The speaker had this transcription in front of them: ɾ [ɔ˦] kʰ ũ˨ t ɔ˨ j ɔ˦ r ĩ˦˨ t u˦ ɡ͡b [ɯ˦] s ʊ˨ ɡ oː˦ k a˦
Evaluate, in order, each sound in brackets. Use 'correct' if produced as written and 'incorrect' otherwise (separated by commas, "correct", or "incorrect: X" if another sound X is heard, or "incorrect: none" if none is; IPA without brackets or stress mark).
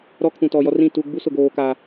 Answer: correct, incorrect: u˦